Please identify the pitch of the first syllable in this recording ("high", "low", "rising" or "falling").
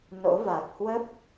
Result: rising